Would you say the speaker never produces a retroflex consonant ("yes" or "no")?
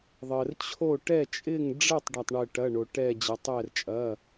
no